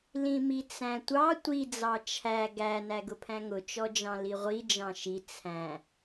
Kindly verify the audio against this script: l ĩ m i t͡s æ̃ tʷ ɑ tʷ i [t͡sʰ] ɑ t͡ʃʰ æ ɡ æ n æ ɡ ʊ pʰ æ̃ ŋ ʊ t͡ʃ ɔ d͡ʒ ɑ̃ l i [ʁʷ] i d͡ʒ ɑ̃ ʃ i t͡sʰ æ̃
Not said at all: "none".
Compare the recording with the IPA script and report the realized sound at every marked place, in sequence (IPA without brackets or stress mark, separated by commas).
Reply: d͡z, ʁʷ